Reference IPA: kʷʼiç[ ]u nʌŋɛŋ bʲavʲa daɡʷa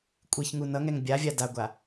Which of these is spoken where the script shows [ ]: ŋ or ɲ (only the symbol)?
ŋ